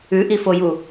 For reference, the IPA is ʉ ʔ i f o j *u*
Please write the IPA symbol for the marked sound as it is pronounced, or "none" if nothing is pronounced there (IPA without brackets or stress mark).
u